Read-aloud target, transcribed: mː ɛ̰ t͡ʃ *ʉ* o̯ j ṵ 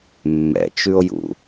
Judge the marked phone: correct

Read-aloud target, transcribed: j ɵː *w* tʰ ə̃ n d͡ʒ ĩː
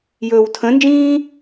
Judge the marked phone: correct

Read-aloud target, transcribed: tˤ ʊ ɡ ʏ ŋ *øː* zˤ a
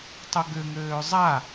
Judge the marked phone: correct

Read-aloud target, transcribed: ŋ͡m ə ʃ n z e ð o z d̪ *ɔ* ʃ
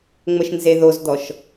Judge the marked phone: correct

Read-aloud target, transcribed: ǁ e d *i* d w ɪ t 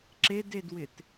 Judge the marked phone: incorrect: e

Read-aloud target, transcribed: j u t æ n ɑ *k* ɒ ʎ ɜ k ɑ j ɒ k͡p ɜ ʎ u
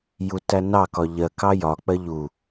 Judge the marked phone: correct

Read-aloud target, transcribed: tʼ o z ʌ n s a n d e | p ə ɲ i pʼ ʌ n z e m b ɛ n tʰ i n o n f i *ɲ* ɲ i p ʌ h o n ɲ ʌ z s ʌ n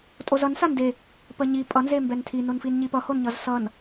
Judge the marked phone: incorrect: n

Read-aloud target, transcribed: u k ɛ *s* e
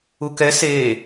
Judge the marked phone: correct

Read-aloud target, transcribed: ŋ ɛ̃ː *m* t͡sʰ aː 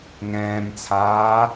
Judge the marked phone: correct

